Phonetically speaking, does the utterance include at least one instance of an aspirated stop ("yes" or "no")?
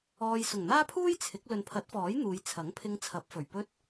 yes